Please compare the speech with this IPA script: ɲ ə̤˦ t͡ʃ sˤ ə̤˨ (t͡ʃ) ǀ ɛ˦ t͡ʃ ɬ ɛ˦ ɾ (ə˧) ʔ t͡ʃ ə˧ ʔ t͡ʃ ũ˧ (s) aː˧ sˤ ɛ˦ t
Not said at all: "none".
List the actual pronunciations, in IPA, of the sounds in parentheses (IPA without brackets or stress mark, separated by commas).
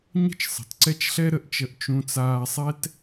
t, ə˧, t͡s